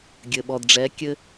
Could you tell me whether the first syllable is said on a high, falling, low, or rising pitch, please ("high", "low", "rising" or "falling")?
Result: low